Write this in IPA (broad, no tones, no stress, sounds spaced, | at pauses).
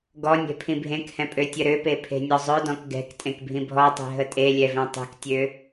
ɡ ɔ nʲ ɛ̤ pʰ ĩ bʱ ẽ k h ɛ̃ pʼ ø tʲ ə ɾ ø p e pʰ e̤ nʲ ɔ zˤ œ d ɔ̃ k ɡ ɛ̤ k tʼ ẽ k bʱ ĩ bʱ ɔ tˤ e̤ ɦ ə tʼ e lʲ ɛ v ɛ̃ tˤ e̤ k tʲ ø